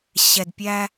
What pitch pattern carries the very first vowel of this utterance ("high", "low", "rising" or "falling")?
low